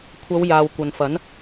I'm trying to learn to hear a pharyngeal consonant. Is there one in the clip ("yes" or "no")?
no